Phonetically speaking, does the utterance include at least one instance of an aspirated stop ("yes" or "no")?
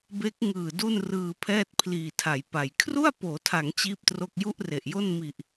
yes